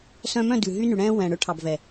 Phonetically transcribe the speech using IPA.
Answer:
s œ̃˧ m œ̃˦˨ d ʉ˨ ɦ y˦ n y˨ ɽ ɛ̃ː˦ w ɛ̃˨ ɽ ɵ˦ ʈʰ ɑ˨ b v ɛ˨

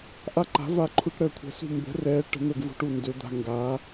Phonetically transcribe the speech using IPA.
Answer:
ʔ a˦ ǃ a̤˨˦ v a˦˨ ǃʰ u˦ ʈ ɾ əː˦˨ kʷʰ ɛ̤˨˦ s ṳ˦˨ m b ə̤˨˦ r ɛː˨˦ ʈ ə̤˨˦ n̪ ə˦˨ ɡ v ṳ˦ ʈ u˦˨ n d ø˨˦ d̪ a̤˦ ŋ ɡ a˨˦

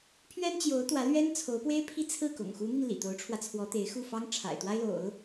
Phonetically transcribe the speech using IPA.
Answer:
pʰ ɥ ɛ˥ n t͡ɕ j o˧˥ ʊ̯ t̪ w ä˧˥ l ɥ ɛ˥ n t͡sʰ o˧˥ ʊ̯ p w e˥ ɪ̯ pʰ i˥ t͡sʰ ɹ̩˥˩ k ʊ̰˨˩ ŋ x u˧˥ n̪ i˧ n l ḭ˨˩ t̪ o˧˥ ʊ̯ ʈ͡ʂʰ w ä˧ t͡sʰ w ɔ˧˥ t̪ e˧˥ ɪ̯ x u˥˩ f ɑ˥ ŋ ʈ͡ʂʰ a̰˨˩ ɪ̯ t̪ w a˥ ɪ̯ l o̰˨˩˦ ʊ̯

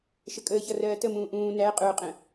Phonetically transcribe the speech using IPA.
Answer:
ʃ ə kʼ əː ç ʌ r ɜː t ə m ũː ʔ ũː n æ qʼ ʊː qʼ ə̃

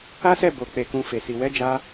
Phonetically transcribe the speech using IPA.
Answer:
a˦ s ɛ˦˨ b o˨ k͡p e˨ k ũ˨ f e˨ s i˨ w ɛ˨˦ d͡ʒ a˧

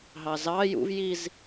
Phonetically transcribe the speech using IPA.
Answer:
ɦ ɑ z ɑ j ṵ v j i z

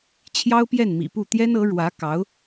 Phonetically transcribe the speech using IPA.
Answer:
t͡ɕʰ j ɑ˥ ʊ̯ p j ɛ˥˩ n m ḭ˨˩ p u˥˩ t̪ j ɛ˥ n ɤ˧˥ ɻ w ä˧˥ k ɑ˧˥ ʊ̯

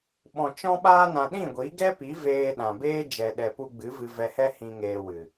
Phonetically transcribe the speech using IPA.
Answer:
ɓ ɔ̃˨ t͡ʃ ɔ̃˧ ɓ aː˧ n ã˨ ɗ ĩ˦˨ ɡʷ i˨˦ ɡ ɛ˦ p i˨˦ v eː˧ ɗ ã˨ b eː˦ d͡ʒ ɛ˨ ɗ ɛ˨ p u˧ ɡ͡b ɨ˨˦ v ɨ˧ v ɛ˧ h ɛ˦ h ĩ˧ ŋ eː˧ w ɨ˨

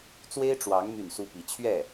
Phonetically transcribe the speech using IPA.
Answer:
t͡s w e˥ ɪ̯ ʈ͡ʂ w ɑ˧˥ ŋ m y˥˩ n s u˥ p i˧˥ t͡ɕʰ ɥ ɛ˥˩

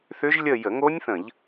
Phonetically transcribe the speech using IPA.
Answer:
θ ʏ˦˥ ʒ lʲ ə˥˧ j ə˧˩˧ ŋ o˦˥ nʲ θ ə̃˧˩˧ ʎ

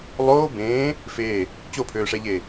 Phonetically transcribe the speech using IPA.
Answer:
lˠ oː b ẽː | f eː | t͡ɕ o pʰ øː ʂ ɛ ʎ eː

